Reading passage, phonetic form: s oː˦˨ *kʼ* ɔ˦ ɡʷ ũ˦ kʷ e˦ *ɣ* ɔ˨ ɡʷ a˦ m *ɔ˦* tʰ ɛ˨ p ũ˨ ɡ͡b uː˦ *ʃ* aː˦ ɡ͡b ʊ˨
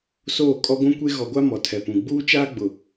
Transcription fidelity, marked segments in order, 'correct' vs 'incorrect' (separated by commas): correct, correct, incorrect, incorrect